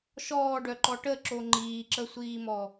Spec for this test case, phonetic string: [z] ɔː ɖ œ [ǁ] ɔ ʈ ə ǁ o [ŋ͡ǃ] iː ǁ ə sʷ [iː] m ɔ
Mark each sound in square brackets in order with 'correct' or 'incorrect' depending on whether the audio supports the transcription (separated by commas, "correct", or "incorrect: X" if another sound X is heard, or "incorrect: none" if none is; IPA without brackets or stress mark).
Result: incorrect: ʃ, incorrect: ǃ, correct, correct